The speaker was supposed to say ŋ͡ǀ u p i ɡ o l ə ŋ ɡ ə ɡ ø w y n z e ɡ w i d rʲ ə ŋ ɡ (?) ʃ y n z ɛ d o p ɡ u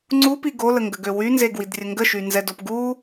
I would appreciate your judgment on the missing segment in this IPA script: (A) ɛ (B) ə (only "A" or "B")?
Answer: B